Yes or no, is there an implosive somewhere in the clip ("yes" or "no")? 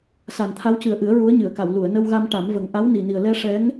no